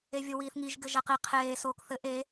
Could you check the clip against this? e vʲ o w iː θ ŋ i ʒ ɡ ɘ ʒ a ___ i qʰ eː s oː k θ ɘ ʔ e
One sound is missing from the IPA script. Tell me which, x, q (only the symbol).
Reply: q